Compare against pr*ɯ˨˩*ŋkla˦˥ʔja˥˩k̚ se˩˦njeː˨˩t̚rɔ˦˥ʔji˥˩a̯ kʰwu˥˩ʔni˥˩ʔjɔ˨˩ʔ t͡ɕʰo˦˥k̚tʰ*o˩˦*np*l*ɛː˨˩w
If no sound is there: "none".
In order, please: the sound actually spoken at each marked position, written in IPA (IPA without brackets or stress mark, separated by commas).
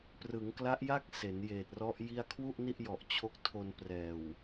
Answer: ɯ˩˦, o˧, r